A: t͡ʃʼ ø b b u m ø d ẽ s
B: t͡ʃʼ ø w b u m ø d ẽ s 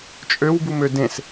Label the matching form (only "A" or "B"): B